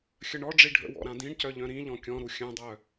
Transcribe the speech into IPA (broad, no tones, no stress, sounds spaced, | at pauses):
xʲ ə ɳ ɔ ɖ͡ʐ i ɖʱ ə̰ w ɔ̰ ɾ ã d ĩ ɳ c œ ʎ œ̃ ɾ ĩ ʎ ɔ̃ kʲ ɔ̃ ɾ u xʲ œ̃ dˤ œ